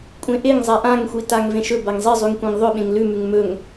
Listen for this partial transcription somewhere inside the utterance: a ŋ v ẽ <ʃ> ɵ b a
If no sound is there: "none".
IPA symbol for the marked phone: ʃ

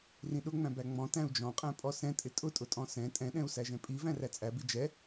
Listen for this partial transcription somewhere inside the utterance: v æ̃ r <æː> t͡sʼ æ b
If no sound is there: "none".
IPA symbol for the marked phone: æ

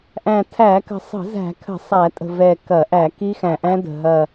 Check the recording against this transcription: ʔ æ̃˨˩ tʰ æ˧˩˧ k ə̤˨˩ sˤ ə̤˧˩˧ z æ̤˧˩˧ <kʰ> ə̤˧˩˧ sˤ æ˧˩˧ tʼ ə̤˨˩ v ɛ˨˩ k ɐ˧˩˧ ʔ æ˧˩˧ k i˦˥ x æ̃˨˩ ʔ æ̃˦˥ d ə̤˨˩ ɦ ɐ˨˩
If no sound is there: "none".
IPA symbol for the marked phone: kʰ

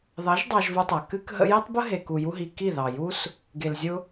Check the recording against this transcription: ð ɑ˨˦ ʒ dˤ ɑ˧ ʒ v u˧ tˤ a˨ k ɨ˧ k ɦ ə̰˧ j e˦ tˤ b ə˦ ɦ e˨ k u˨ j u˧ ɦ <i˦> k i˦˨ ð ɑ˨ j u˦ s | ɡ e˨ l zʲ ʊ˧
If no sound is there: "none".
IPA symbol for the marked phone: i˨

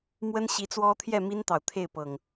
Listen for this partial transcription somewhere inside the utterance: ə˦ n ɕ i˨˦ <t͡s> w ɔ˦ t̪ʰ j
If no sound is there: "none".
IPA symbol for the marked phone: t͡s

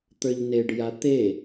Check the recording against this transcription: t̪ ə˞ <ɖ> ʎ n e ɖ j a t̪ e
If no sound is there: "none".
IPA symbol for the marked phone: none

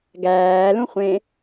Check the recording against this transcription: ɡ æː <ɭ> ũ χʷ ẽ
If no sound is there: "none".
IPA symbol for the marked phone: l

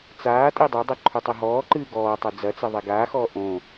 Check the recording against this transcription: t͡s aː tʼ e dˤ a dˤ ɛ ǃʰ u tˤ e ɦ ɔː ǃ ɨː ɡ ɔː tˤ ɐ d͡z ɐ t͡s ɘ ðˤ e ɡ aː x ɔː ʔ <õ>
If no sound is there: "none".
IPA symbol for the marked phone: õ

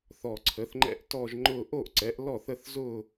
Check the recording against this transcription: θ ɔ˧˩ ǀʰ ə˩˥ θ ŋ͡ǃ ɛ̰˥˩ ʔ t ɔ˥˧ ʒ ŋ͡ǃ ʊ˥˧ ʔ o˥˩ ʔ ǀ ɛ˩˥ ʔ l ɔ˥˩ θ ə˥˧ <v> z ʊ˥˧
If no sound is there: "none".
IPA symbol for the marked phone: θ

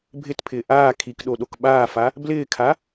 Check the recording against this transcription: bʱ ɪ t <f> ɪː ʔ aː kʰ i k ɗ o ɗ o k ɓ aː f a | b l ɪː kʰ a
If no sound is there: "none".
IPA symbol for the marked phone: pʰ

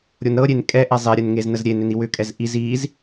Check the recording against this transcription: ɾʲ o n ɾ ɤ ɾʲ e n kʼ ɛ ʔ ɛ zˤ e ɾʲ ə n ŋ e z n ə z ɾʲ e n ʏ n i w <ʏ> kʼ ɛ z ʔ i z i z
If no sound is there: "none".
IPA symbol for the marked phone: ʏ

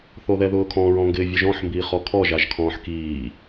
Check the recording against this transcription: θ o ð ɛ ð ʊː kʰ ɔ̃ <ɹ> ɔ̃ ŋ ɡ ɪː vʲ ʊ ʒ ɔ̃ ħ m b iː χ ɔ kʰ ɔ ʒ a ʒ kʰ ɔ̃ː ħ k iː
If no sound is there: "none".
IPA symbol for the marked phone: ɹ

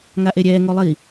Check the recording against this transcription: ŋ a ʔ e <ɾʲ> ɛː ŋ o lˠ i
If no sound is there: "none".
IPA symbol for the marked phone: ɾʲ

